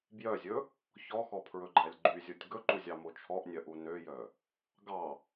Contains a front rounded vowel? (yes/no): yes